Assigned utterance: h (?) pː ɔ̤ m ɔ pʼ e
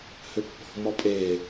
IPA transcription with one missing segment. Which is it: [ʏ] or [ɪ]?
ʏ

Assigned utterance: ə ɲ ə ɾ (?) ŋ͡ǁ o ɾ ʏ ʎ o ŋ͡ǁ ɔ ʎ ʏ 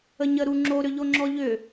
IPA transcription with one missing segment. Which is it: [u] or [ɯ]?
u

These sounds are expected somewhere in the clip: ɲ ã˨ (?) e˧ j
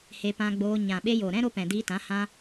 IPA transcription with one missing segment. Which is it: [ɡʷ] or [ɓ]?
ɓ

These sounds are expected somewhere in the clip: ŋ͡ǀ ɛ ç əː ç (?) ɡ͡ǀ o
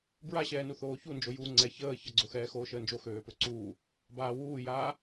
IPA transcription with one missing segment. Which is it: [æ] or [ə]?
ə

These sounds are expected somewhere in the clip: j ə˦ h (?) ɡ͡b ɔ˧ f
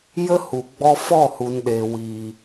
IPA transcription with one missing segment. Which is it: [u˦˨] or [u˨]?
u˨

